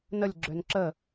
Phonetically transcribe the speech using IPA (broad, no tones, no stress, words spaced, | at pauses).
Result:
nəlʲɡ͡ǁøn ǁə